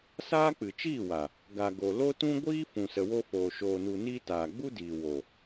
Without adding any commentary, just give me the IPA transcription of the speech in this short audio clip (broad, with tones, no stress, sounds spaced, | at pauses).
s aː˦ k͡p ɨ˨ t͡ʃ iː˦˨ w a˨ | ɡ a˨ ɡ o˨ l o˦ t ũ˦ ɡʷ iː˦ f ũ˨ s ə˨ w o˧ f oː˨ ʃ oː˨ n u˨ n iː˧ t aː˨ ɡ͡b u˦ d iː˨ w o˨